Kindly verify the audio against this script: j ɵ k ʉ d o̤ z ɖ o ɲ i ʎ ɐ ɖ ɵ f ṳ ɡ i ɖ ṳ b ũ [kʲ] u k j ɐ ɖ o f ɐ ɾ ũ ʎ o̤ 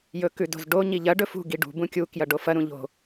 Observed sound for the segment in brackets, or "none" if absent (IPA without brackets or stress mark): kʲ